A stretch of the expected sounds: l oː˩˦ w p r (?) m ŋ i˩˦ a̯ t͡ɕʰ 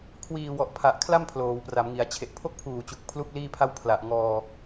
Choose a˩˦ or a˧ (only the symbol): a˩˦